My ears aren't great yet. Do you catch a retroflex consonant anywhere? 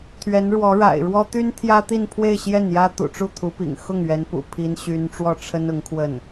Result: yes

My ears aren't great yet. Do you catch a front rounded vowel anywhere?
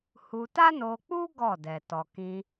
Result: no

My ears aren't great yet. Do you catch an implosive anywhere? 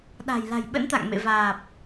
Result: yes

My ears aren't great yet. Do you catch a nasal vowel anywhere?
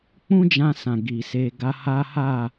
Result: yes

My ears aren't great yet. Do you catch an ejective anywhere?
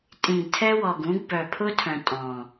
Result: yes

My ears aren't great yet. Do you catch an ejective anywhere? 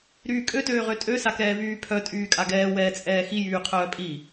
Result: yes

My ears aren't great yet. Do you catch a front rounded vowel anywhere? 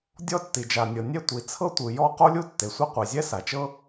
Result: no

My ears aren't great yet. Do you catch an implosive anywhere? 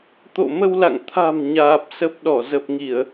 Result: yes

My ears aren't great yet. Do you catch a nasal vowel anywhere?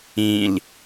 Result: yes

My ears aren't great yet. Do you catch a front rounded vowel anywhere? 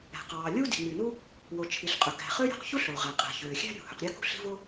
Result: yes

